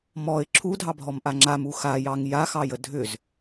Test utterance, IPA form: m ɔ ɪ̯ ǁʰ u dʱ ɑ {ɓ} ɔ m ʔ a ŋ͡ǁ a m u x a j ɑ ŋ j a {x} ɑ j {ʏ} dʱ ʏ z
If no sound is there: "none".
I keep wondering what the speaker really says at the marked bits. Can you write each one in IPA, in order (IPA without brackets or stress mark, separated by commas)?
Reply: bʱ, x, ə